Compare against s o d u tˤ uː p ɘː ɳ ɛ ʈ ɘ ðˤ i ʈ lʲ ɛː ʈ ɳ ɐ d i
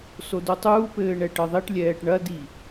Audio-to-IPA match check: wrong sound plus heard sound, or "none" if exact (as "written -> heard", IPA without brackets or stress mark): none